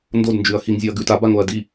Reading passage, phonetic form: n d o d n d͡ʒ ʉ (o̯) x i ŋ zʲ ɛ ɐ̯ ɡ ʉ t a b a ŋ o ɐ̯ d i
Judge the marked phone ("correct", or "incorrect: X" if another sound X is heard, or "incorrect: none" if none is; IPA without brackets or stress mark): incorrect: ɐ̯